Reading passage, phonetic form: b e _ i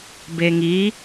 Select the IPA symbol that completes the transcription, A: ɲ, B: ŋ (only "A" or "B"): B